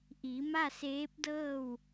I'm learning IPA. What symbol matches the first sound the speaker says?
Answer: ʔ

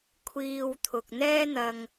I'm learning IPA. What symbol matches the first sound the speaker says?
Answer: kʷʰ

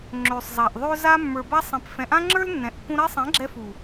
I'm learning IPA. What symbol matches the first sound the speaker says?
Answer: ŋ͡ǁ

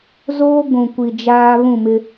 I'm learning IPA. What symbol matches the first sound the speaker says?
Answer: z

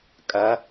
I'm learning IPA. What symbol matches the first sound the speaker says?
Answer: kʼ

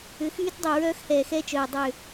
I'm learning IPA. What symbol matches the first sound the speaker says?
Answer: ʏ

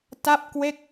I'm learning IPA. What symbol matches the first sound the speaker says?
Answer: t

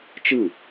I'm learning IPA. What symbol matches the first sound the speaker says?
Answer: t͡ʃ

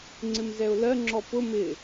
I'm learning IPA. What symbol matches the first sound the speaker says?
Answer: ŋ͡ǀ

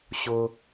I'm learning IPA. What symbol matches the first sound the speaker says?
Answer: ɕ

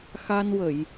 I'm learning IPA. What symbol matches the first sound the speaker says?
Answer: x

